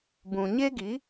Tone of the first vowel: low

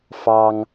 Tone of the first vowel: high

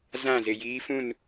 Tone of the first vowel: falling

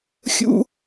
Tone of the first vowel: high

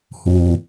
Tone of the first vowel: low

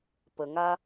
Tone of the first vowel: low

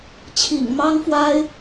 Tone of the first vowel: low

